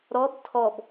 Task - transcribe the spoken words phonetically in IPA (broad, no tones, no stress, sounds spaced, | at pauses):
ɾ ɔ b tʰ ɔ b